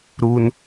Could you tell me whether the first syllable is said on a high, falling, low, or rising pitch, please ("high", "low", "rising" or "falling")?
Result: low